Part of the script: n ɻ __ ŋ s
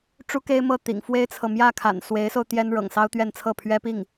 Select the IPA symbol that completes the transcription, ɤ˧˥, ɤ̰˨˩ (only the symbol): ɤ̰˨˩